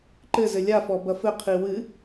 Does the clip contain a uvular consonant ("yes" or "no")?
yes